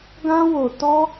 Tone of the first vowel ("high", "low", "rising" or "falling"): high